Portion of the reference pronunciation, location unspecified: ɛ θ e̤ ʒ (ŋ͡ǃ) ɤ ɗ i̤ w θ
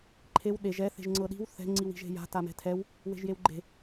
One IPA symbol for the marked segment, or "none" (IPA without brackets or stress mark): ŋ͡ǀ